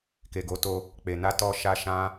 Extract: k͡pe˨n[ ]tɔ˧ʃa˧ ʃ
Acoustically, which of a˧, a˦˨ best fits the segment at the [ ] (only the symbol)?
a˧